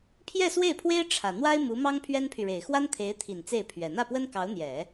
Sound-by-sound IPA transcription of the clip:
pʰ j ɛ˥˧ s w e˥˩ ɪ̯ pʰ w e˥ ɪ̯ ʈ͡ʂʰ ä˨˩ n̪ w a˥ ɪ̯ m u˧˥ m ɑ˥ ŋ pʰ ɥ ɛ˥ n pʰ y˨ ɻ e˨˩ ɪ̯ x w a˥ n t̪ʰ e˧˥ ɪ̯ t̪ʰ i˨˩ n t͡s e˥˩ ɪ̯ pʰ ɥ ɛ˨˩ n̪ ä˥˩ p w ə˥ n k ɑ˧˥ ʊ̯ n̪ j ɛ˨˩˦

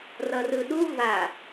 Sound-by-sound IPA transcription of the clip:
r ʌ r ɯ ɗ u v a

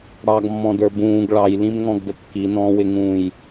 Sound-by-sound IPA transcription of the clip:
ɽ ɑ ɡ mː ɔ̃ d ə˞ b ũː ɡ ɭ ɑ j l ĩ m ŋ ɔ̃ ɡ d ə kː i n ɔ̃ː w ɪ ŋ ũː j

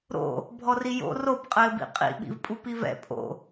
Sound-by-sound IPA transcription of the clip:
ɾ o̰ | bʱ ɔ r i j o̰ r o b qʼ ɘː b ḭ qʼ ḭ ɓ ḭ v pʼ u p i v ɛ̰ pʼ o̰

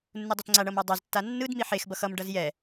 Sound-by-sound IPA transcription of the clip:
nː u dˤ i t ŋ͡ǀ a ɳ ʌ m a dˤ a z tː a nː ɯ d m i ħ e x b ʌ x ʌ m ɖ ʌ z j ɛ

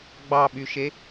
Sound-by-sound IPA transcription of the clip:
ɡ͡b ɑ ɓ y ʃ e

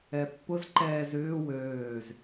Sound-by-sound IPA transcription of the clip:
ɛ pː ʊ z ǃ ɛː z ʏː w øː z

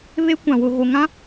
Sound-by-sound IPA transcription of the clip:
β e˦ kʷ ã˨ w ʊ˨ ɣ o˨ ŋ ã˦

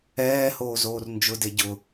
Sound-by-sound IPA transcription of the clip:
ɛː h oː z oː r n d͡ʒ ʊ d e ɟ ʊ

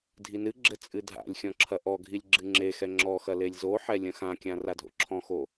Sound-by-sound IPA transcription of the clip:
dʱ i n ɨ ɡ͡ǁ ɘ t͡sʼ ɨ dʱ a̰ lʲ xʲ ɔ̃ ǁʰ ɐ ʔ ɔ ɡʱ i lʲ ɡ͡ǁ ɨ ŋ͡ǁ e x ɛ ŋ͡ǁ ɔ x ɐ l e lʲ z o ħ ɛ lʲ ɐ̃ x ã kʲ ã r a dʱ o̰ ǁʰ ɔ̃ x o

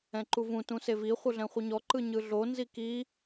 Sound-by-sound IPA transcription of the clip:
ɛ̃ ǃ u v ũ t ũ s e v i χʷ ɯ ɮ ɛ̃ χʷ ɯ ɲ ɔ ǃ ɯ ɲ ɯ ɮ o n z i k i

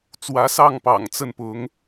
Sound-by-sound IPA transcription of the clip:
t͡s w ä˧˥ s ɑ˥˩ ŋ p ɑ̰˨˩ ŋ t͡s ə˥˩ n p ʊ˧˥ ŋ

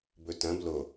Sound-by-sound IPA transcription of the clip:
b ɵ t ɐ̃ b l o

